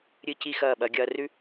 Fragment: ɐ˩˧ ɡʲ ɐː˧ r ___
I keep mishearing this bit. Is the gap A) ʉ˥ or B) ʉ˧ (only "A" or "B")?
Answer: B